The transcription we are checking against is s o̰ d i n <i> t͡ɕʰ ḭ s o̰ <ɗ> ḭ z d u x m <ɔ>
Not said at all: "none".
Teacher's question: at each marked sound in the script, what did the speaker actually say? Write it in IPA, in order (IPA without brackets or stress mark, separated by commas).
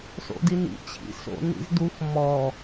ḭ, n, ɔ